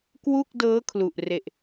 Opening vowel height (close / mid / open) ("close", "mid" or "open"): close